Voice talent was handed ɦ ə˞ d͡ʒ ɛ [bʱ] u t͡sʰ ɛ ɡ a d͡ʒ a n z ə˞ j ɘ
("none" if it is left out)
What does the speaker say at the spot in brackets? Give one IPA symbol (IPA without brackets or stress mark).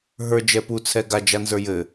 p